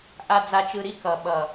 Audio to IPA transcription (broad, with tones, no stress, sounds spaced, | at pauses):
ʔ a˨ d͡z a˨ t͡ʃ ɯ˨ ɾ i˧ k ʌ˨ ɓ ʌ˨